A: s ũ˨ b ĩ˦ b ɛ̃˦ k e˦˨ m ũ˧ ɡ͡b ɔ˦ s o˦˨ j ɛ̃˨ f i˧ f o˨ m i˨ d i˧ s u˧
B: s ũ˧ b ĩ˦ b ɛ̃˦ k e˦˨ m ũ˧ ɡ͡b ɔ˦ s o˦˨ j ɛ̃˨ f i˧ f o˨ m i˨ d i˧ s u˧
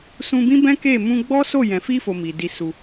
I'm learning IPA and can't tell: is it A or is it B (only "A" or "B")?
B